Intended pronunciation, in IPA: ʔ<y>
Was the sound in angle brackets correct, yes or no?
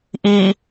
no